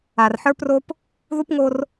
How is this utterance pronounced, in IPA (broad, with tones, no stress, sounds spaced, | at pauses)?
a˨ r ħ ə˞˦ p r o˦ p | ð u˦ p ŋ o˦ r